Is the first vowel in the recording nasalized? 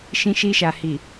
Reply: yes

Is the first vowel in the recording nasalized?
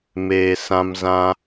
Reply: no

